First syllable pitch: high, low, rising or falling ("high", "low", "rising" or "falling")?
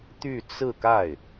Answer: falling